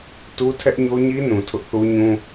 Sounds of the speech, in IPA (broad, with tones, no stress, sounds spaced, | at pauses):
t u˦ tʰ ɛ˦ ʔ ɲ o˦ ɲ i˦ n ũ˨ tʰ ʊ˦ ʔ θ u˦ ɲ ũ˦